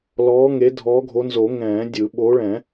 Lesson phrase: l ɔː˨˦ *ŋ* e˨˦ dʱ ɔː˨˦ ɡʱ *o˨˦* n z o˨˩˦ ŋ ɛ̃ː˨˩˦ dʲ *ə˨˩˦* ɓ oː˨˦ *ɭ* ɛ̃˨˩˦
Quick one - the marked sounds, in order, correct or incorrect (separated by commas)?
correct, correct, incorrect, correct